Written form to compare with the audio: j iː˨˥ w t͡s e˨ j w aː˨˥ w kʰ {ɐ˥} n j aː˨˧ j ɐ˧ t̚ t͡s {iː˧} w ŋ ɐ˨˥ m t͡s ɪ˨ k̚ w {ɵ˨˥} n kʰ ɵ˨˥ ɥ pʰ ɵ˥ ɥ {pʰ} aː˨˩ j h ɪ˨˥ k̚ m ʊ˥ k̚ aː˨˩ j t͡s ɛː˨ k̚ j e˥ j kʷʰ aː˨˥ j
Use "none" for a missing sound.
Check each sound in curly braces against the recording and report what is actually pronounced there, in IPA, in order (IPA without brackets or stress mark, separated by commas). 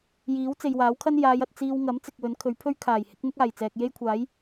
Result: ɐ˥, iː˧, ɵ˨˥, kʰ